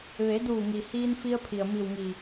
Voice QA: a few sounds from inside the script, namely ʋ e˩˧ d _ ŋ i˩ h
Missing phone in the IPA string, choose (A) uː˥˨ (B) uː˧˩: B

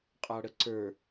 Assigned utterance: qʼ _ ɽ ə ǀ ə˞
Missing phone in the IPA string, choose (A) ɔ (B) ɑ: B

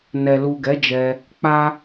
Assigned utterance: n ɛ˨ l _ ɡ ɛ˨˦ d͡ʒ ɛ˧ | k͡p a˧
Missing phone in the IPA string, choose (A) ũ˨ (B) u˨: B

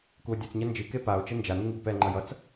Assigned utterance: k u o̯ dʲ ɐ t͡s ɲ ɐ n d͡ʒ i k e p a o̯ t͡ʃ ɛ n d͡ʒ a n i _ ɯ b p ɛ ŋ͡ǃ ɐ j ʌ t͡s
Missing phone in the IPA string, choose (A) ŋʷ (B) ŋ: B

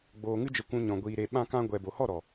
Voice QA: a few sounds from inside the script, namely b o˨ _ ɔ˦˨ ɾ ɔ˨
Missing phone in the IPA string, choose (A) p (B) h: B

